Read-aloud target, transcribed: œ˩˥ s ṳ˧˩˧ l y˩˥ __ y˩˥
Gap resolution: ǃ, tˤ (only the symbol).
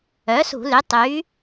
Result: tˤ